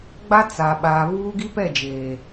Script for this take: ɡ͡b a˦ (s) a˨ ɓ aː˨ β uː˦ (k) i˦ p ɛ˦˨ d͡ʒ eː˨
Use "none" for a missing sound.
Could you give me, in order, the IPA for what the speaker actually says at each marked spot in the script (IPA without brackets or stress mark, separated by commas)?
t͡s, ɡ